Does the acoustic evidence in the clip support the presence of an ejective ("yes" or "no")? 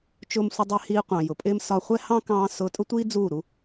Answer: yes